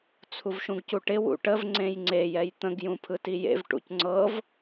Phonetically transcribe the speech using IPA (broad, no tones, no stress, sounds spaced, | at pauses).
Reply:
t͡sʰ u v ʃ ũ ɡ c u ʈ ɪ w ṵ ʈ ə v ŋ͡ǀ ẽ j ŋ͡ǀ e j ɛ j t̪ ə̃ ɡ j ũ pʰ ɯ t i j ḛ v ʈ ṵ c ŋ͡ǀ ɤ v